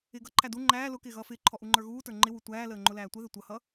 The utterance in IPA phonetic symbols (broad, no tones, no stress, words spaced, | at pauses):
ɪːɡʌǃʰæ du ŋ͡ǃæː lʊ kɪːɣʌːfɪːǃʰɔ ʔuŋ͡ǃə˞ɣuːtə˞ ŋ͡ǃɪwu tʷæːləː ŋ͡ǃʊlæːtʷəðɪ tʷʌhʌ